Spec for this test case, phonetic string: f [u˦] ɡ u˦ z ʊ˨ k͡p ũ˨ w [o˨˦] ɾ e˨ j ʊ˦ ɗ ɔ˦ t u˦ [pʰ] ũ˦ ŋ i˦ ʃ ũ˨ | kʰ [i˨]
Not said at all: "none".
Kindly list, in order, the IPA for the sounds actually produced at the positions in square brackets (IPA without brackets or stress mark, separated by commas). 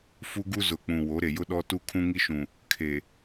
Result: u˦, o˨˦, kʰ, e˨